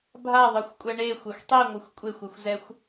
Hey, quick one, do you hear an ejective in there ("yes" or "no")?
yes